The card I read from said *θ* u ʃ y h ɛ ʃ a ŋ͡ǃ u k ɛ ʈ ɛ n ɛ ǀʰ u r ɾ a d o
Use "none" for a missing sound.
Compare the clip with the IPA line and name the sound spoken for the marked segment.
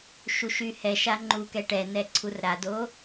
ʃ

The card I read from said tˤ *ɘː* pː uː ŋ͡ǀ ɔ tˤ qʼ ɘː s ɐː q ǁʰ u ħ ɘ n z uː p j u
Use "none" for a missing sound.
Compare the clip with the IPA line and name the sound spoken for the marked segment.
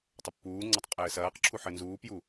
ɘ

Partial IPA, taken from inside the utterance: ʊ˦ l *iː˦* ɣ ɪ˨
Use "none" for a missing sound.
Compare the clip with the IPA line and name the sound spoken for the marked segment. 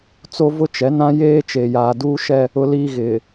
iː˦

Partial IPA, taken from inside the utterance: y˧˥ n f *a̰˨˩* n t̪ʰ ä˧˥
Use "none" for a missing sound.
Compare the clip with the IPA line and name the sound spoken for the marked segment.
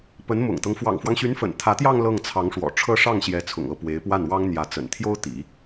ə̰˨˩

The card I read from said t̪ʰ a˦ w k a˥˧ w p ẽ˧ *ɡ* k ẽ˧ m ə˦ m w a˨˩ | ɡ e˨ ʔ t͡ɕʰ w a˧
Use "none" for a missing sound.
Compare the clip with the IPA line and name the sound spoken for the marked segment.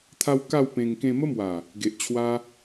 ŋ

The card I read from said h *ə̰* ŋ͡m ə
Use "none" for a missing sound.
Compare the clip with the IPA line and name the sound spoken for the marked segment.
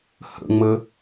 ə̰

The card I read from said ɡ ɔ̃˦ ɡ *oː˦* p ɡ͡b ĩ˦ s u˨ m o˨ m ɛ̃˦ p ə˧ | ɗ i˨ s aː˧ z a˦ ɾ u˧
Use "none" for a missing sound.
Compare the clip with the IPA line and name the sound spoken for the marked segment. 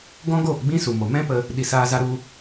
oː˦˨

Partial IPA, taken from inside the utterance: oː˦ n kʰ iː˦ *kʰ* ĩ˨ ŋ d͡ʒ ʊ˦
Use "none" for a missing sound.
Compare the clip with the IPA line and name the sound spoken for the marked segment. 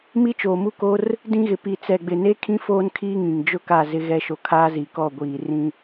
ŋ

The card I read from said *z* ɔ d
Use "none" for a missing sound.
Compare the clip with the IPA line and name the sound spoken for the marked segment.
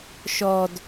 ʃ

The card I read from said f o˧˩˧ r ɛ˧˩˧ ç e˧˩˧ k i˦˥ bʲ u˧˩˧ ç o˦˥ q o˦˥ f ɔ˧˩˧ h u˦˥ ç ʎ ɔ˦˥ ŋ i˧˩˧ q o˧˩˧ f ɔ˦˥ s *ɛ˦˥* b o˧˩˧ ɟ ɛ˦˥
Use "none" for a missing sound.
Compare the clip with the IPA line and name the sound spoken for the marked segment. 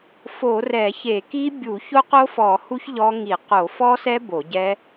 ɛ˦˥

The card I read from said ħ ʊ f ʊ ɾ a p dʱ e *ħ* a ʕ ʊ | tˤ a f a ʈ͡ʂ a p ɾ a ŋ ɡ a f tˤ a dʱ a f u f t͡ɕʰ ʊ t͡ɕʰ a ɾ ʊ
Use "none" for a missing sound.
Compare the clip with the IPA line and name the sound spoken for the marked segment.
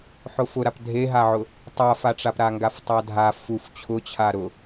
ɦ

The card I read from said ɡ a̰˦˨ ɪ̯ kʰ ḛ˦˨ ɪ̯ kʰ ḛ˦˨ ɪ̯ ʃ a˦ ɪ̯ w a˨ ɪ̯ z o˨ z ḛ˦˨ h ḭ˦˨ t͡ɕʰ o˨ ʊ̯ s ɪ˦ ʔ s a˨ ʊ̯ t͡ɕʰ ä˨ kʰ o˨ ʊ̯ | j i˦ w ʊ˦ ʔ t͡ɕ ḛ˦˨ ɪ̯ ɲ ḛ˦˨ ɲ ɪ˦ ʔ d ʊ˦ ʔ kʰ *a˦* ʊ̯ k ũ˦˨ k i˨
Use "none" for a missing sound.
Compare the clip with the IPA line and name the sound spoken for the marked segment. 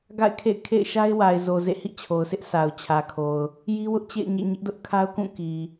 a˦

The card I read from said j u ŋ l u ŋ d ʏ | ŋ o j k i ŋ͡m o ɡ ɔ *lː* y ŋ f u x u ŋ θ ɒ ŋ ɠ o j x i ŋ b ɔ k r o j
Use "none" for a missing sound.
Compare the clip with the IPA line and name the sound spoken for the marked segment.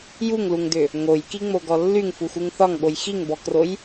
lː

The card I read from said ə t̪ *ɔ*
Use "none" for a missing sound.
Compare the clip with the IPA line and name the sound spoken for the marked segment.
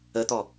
ɔ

